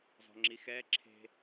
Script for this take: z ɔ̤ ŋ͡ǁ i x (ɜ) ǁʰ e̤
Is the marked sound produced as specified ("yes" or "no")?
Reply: no